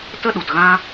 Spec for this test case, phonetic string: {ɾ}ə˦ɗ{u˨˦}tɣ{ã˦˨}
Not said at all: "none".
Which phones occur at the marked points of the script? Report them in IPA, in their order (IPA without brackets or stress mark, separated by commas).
t, u˨, ã˦